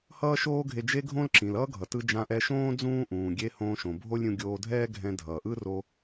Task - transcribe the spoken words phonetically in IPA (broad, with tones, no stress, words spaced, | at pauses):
hʌː˥ʃoː˥ɡʱe˧ d͡ʒe˥ɡʱõ˥l ǁĩ˩lʌː˥ɡʱʌ˩tɯ˧ d͡ʒã˧ʔɛ˧ʃõː˥ d͡zũː˥ ʔũː˩ ɡʲe˧ hõː˧ʃõ˩bʱo˥lʲɾʲũ˧ ɡʲoː˧dʱɛː˥ɡʱɛ̃˧ dʱʌː˩ʔɯ˥ro˧